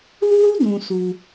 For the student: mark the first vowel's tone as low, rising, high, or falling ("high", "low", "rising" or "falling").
high